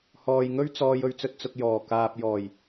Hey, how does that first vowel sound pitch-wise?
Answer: low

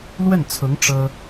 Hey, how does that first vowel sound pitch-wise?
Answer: falling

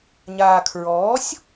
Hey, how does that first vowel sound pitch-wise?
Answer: low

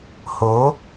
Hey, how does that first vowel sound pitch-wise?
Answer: rising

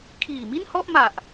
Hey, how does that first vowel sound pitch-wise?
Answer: low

